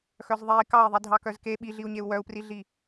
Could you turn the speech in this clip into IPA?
x œ z ðˤ e i̯ k ɑ i̯ ðˤ i dʱ ɑ k œ z k e ɓ i ɮ i u̯ ɲ e u̯ w œ u̯ p r i ɮ i

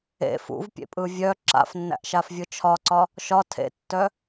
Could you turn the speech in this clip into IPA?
ḛ f ṵ v pʲ ḛ pʼ ɯ vʲ œ ǁ a̰ f nː æ̰ ʔ ʃ a f vʲ ɯ t͡ʃʰ ɒ ǀ ɒ | ʃ ɒ tʰ ḛ tː œ

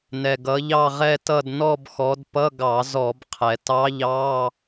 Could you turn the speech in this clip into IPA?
n ɛ˩ ɡ ʌ˩˧ ʎ ɑ˦˨ ʁ ɛ˦˨ t ʌ˦˨ d n ɔ˦˨ b x ɔ˩˧ d p ʌ˧˥˧ ɡ ɑ˧˩˧ z ɔ˧˩˧ b qʰ ɛ˩ t ɑ˧˥ ʎ ɑ˧˥˧

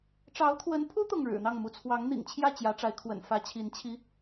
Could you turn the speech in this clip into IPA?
ʈ͡ʂ ɑ˧˥ ʊ̯ t̪ʰ w ə˧˥ n pʰ u˥ t̪ ʊ˥˩ ŋ ɻ ɻ̩˨˩ n̪ ɑ˥˩ ŋ m u˧˥ t͡sʰ w ɑ˧˥ ŋ n̪ ḭ˨˩ ŋ t͡ɕʰ j ä˥˩ t͡ɕ j ä˧˥ ʈ͡ʂ a˧˥ ɪ̯ kʰ w ə̰˨˩ n f ä˧˥ t͡ɕʰ i˧˥ n t͡ɕʰ i˥

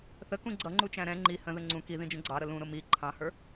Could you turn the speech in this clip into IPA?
θ ə k ũ ɡ͡ǀ ʌ ŋ͡ǃ u t͡ʃ æ̃ ɾ ɛ̃ ŋ͡ǃ i h ə̃ ð ə ŋ͡ǀ ũ k i ð ĩ d͡ʒ ə̃ ɡ͡ǀ ɑ ɾ ə l ũ ɾ ʊ m i ǃʰ ɑ̃ h ə˞

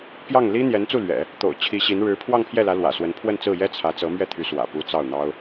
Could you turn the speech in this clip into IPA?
p j ɑ˥˩ ŋ l i˥ n̪ j ɛ˧˥ n t͡s u˥˩ l ɥ ɛ̰˨˩˦ | t̪ o̰˨˩ ʊ̯ t͡ɕʰ i˧˥ ɕ i˧˥ n ɻ ɻ̩˧˥ pʰ w ɑ˥˧ ŋ pʰ j ɛ˥˩ l ä˧˥ l w ä̰˨˩ s w ə˧˥ n pʰ w ə˥˧ n t͡s ɹ̩˥˩ j ɛ˥ t͡sʰ ä˧˥ t͡s ɤ˧˥ m ɥ ɛ˥˩ t̪ʰ y˧˥ s w ä̰˨˩ p u˧˥ t͡s ɑ˥˩ ʊ̯ n̪ ɑ˥ ʊ̯

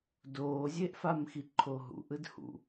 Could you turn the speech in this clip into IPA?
d oː zʲ e ʔ f a m x i ǃʰ o ɦ ṵ ʔ ɯ d h ṵ

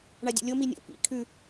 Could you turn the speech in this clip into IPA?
ɳ a dʲ ṵ lʲ o m i nʲ o̰ p ḭ kʰ ʉ

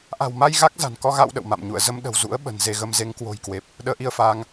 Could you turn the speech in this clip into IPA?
ʔ a̤˨˩ w m a˧ j ɣ a˦˥ k̚ z a̤˨˩ n k ɔ˧ ɣ a̰˧˨ w ɗ ə̰˧˨ w m a̰˧˨ m ɲ ṵ˧˨ ə̯ z ə˧ m ɗ ə̤˨˩ w z ṵ˧˥ ə̯ ɓ ə̤˨˩ n z e˧ ɣ ə˧ m z e˨˦ ŋ k w o̤˨˩ j k w e˨˩ p̚ | ɗ əː˨˦ ʔ i˧ ə̯ f aː˧ ŋ

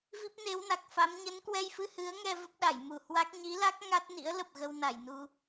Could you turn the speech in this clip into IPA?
v i˦˥ p̚ n e˨˦ w n a˨˩ k̚ f a˨˦ m ɲ ə˨˦ n k w ɛ˧ j f ɨ˧ h ɨ˨˦ ə̯ ŋ ɛ˧ v ə˦˥ p̚ ɗ a˧˩ j m u˧˩ h w a˦˥ k̚ ɲ i˨˦ l a˦˥ k̚ ŋ a˦˥ t̚ n ḭ˧˥ ə̯ l ə˨˩ p̚ ɣ ə˧ w n a˧˩ j n u˧

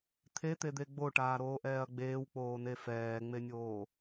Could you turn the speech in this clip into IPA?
t̪ʰ e t̪ e d̪ e ɡ͡b o ʈ aː ɾ oː ʔ ɛː ɐ̯ ɡ͡b eː w k͡p oː n e f ɛː ŋ͡m e nʲ oː

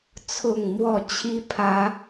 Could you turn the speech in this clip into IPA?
t͡sʰ ʊ˥˨ ŋ m w ɔ˥˨ t͡ɕʰ i˦ pʰ ä˨˦

